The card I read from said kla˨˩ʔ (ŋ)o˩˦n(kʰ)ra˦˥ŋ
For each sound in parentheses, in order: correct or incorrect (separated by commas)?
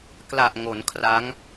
correct, correct